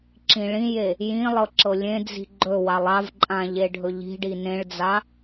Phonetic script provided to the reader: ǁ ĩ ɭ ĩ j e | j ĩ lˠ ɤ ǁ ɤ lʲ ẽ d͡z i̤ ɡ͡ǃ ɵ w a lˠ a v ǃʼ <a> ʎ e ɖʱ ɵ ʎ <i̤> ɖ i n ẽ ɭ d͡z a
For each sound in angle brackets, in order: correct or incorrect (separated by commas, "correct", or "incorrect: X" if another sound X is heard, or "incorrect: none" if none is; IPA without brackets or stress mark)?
incorrect: ã, correct